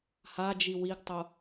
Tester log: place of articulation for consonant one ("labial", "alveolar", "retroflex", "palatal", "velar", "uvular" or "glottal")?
glottal